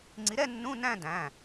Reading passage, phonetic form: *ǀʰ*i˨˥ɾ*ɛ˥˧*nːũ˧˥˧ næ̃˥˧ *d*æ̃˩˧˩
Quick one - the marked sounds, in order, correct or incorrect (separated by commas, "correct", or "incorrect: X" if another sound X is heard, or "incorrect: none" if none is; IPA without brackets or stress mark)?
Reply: incorrect: ŋ͡ǀ, correct, correct